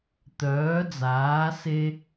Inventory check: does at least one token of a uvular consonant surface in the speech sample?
no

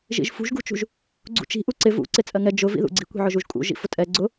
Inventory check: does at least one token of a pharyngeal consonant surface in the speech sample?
yes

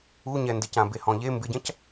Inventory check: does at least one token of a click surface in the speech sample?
no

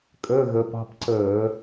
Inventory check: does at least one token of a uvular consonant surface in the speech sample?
no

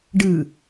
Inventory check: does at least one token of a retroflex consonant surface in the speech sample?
yes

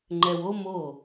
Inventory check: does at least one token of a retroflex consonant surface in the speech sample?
no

